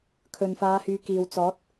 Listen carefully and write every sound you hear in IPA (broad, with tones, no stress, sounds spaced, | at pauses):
kʰ ɵ˨ n f aː˨˧ h yː˨˧ k iː˨ w t͡s ɔː˨˥ t̚